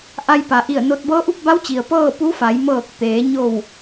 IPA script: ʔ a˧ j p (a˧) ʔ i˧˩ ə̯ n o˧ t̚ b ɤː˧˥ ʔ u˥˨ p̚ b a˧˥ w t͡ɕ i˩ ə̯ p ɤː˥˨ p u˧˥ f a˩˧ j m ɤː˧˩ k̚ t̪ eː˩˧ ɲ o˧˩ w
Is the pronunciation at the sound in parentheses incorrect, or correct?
incorrect